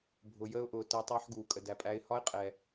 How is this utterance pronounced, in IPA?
bʱ ʊ˨ j əː˧ ʊ̯ ʔ ʊː˨ t əː˧ tˤ ɑ˦ ħ ɡ uː˨ kʼ ə˨ d æ˨ pʼ æ˧ ɪ̯ h ɒ˦ ɪ̯ qʼ ɛ˨

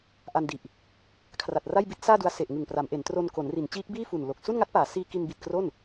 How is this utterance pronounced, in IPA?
ʔ a˧ n d i˨˩ ʔ | kʰ r a˨˩ t̚ r a˥˩ j b i˦˥ t̚ s aː˥˩ d u˧ a̯ s e˨˩ ʔ ŋ ɯ˨˩ ŋ p r a˩˦ m ʔ e˩˦ n t r o˧ n k o˩˦ n r i˩˦ n t͡ɕ iː˦˥ k̚ b iː˥˩ f u˨˩ n l o˨˩ k̚ s u˥˩ n ŋ a˦˥ t̚ p aː˩˦ s iː˧ k i˧ n b i˨˩ t̚ k r o˥˩ n

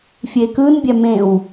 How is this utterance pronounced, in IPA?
fʲ e k ɯ n bʲ ɛ m ẽ w

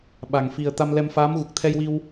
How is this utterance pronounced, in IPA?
ɓ a˨˩ ŋ f i˨˩ ə̯ t̪ a˧ m l ɛ˧ m f aː˧˥ m ɣ u˨˩ k̚ t̪ʰ ɛ˧ j w i˧ w

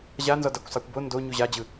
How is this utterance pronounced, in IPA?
ʑ a n z ɔ d a kʷ sˤ a kʷ b o n d o ɲ u ʑ a d͡ʑ ɯ

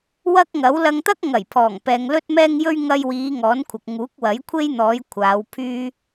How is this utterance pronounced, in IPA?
w ɐ˥ k̚ ŋ ɐ˨˥ w l ɐ˧ ŋ t̪ ɐ˥ k̚ ŋ ɐ˨˩ j pʰ ɔː˨˩ ŋ p ɛː˨ ŋ l ɵ˥ t̚ m ɛː˥ ŋ j ɵ˥ ɥ ŋ ɐ˧ j w iː˨˧ ŋ ɔː˨˥ n kʷʰ ɐ˨ k̚ ŋ uː˨˥ k̚ w ɐ˨˥ j kʷʰ e˥ j n̪ ɔː˨˧ j kʷʰ aː˨˧ w pʰ yː˥

